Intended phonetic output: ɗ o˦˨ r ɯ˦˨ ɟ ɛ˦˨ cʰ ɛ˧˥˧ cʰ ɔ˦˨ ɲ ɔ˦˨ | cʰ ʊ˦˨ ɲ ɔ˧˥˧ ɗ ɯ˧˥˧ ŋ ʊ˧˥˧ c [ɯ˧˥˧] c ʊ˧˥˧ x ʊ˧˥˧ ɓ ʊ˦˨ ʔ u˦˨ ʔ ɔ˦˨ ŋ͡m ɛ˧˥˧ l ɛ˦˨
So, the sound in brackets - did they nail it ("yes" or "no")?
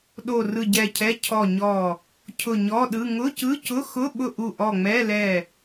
yes